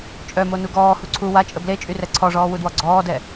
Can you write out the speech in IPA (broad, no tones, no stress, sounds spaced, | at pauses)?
t͡ʃʼ œ m o n u ɡ ɔː h u ǀʰ u w a t͡ʃʼ ə b l e t͡ʃʼ y r ɛ ǀʰ ɔ ʐ ɔː w u d w ɔ ɡ͡ǀ ɔː d ɛ